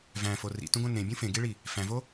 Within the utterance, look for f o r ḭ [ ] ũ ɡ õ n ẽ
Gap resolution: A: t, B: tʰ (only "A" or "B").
A